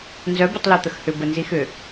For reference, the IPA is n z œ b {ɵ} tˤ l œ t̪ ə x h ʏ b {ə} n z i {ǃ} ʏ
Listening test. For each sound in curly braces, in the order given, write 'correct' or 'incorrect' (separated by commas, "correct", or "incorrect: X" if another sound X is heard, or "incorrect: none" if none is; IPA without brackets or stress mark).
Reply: incorrect: ə, correct, incorrect: x